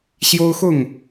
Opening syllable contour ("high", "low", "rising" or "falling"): high